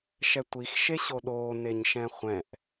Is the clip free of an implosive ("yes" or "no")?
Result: no